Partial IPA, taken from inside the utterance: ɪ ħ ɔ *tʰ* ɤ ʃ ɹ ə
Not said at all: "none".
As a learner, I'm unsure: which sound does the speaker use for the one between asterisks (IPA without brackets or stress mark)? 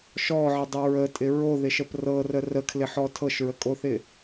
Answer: tʰ